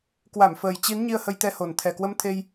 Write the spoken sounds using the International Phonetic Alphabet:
kwa˧˩mfəː˨˩j t͡ɕi˨˦n ɲi˧ə̯hə˧jt̪ɛ˧ho˨˩n t̪ʰɛ˨˩kwə˧mt̪ʰe˧j

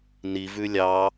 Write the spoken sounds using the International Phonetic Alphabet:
ni vʉlʲɑ

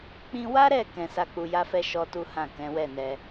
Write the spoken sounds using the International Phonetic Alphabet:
k͡pĩ˧wa˦ɾɛ˦˨ kɛ̃˧ sa˧k͡pu˧ja˦fɛ˦ ʃɔ˦tu˦hã˦˨ kɛ̃˨˦wɛ˦˨nɛ˧

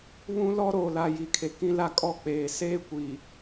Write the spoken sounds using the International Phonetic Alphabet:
βũ˦ lɔ˦ ɾoː˨la˨ji˨˦kʰe˨ kĩ˦la˦kʼɔ˦˨ k͡peː˨ seː˦kʷi˨

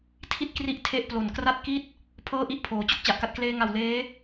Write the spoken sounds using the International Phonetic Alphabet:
tʰi˥˩t̚kri˦˥ʔ tʰe˥˩ʔplo˨˩n kra˥˩t̚ki˥˩t̚ | pʰɤː˥˩ʔi˦˥ʔpʰoː˩˦ t͡ɕo˥˩k̚t͡ɕa˨˩ʔka˦˥t̚ kleː˧ŋa˨˩w leː˦˥

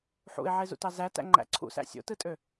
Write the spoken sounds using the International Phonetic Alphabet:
ħṵɪ̯ʕezṵtɑ zætæ̰ ŋ͡ǃæ̰ǀʰṵsæ̰ sʲo̰tɯtʼø

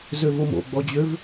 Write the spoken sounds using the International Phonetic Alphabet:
zøvomo̰ ɡ͡bɔd͡ʑøv

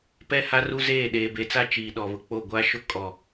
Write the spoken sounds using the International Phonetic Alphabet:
pɛ˦ha˦ru˦zeː˦˨ ɗeː˨be˨t͡sa˦ t͡ʃiː˨ɗɔ˨βʊ˨k͡po˦˨ ɡʷa˦ʃʊ˦ kʼɔ˨

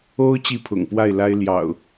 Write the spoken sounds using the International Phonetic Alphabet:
o˦ʊ̯ t͡ɕi˥˨pʰʊ̰˨˩ŋpwa˥˨ɪ̯ la˦ɪ̯ljɑ̰˨˩ʊ̯

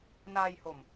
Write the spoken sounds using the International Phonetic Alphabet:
naː˧jho˨˩m

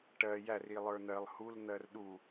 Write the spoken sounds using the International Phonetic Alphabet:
ʈɜ jærilˠə˞ n̪ɜlˠ huln̪ɜr ɗu

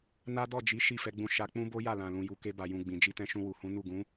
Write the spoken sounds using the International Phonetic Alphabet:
na˦dɔ˦˨d͡ʒi˨˦ ʃi˦˨fɛ˧ɡ͡bũ˧ ʃa˧ k͡pũ˦bo˦ ja˦˨lã˨ lũ˨ju˨ke˧ba˨ jũ˨ɡ͡bĩ˨ d͡ʒi˧tɛ̃˧ʃũ˧ wu˨hũ˨˦nu˦˨ ɡũ˨˦

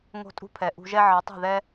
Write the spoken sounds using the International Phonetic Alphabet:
ŋo̤˦tʼṳ˦pʰɛ˨ ʔṳ˧ʒɛ˦ ʕʌ˨˦tˤi̤˦˨ðɛ˦

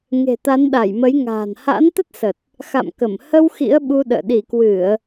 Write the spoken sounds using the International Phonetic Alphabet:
ŋe̤˨˩t̪a˨˦nɗa˧˩jmə˨˦j ŋa̤ː˨˩nha̰˧˥nt̪ə˦˥t̚sə˨˩t̚ | xa̰˧˨mkə˧˩m hə˧w xḭ˧˥ə̯ɓu˧ɗə̰ː˧˨ ɗi˧˩kwɨ˧˩˨ə̯

